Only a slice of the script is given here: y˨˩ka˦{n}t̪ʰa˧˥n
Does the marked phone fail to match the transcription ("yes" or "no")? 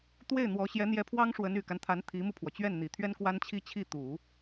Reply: no